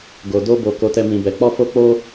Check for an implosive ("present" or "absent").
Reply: absent